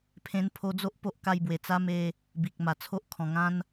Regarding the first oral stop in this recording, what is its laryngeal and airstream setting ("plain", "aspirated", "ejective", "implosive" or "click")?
aspirated